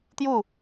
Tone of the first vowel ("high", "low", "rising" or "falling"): falling